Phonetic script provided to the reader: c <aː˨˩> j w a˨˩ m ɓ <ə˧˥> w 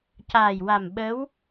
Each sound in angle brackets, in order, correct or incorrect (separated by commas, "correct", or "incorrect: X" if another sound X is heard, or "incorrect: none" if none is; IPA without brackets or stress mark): correct, correct